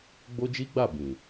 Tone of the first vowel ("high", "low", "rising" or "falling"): high